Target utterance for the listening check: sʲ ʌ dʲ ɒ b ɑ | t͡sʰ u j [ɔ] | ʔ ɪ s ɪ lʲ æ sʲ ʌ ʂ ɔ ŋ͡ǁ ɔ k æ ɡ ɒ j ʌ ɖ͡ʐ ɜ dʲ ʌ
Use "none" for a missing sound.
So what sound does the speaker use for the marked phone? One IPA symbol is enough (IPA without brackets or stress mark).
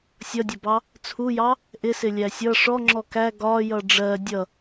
ɑ